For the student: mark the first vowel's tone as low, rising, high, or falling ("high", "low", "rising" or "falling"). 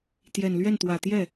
low